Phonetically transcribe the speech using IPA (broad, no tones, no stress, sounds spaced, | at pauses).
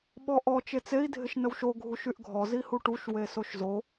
ɓ ɔ ʔ ɔ t͡ʃ e t͡s e i̯ dʱ ɪ ʃ n ə w ʃ o ɡʱ u ʃ y ʔ ɡʱ ɔ z i h u ʈ u ʃ w e s o ʃ z o